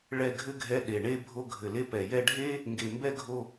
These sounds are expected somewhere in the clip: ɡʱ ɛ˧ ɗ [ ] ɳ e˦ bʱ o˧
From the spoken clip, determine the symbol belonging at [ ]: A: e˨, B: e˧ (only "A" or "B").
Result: A